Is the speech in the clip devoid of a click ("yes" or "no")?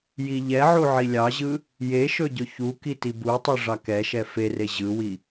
yes